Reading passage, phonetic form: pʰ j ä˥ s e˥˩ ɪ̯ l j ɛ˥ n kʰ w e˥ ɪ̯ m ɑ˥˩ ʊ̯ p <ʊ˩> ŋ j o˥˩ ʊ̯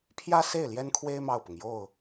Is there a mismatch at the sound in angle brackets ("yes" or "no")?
no